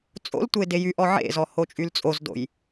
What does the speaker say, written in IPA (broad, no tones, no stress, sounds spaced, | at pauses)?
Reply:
t͡sʼ o̰ l tʷ e d e j y ʔ ɔ ʕ ḛ z ɔ h o t͡ʃʼ y l t͡sʼ o z d o̰ j